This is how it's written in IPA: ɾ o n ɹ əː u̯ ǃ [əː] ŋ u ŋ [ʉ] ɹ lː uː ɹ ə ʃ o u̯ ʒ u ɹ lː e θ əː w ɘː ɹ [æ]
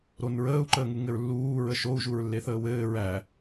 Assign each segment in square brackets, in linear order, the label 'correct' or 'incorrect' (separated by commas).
correct, incorrect, correct